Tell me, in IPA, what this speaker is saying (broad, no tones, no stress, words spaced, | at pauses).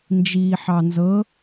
nd͡ʒiːħɑnzɤ